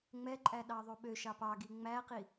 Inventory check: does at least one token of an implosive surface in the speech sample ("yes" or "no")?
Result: yes